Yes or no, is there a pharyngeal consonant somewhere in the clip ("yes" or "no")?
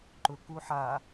yes